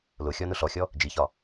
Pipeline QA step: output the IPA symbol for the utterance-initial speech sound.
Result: l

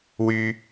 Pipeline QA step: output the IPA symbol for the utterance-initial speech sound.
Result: w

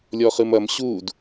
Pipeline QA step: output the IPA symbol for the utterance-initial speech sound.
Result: lʲ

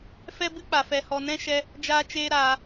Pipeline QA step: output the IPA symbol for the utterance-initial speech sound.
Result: f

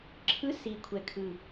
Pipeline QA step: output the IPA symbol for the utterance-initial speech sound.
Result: ǁʰ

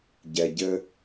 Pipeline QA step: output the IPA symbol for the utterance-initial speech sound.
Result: ɟ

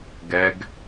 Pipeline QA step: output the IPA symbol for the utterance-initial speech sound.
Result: ɡ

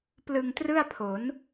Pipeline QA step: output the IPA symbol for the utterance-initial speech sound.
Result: p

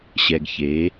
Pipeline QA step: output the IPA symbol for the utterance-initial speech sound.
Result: ɕ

